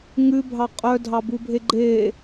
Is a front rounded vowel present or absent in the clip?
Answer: present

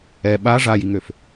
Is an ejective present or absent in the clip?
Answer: absent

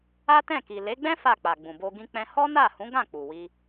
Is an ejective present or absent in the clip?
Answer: absent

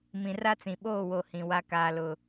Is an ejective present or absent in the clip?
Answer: absent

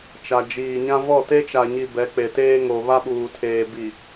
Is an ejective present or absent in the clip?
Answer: absent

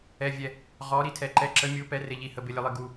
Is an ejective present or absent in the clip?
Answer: absent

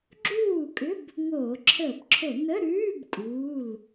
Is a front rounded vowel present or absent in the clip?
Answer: present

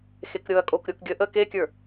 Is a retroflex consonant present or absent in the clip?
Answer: absent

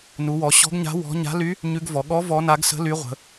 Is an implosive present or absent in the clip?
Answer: present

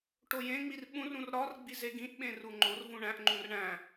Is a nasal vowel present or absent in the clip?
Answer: present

